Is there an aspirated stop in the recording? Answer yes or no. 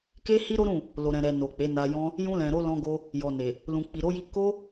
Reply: no